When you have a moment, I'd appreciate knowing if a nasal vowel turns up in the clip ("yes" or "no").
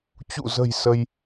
no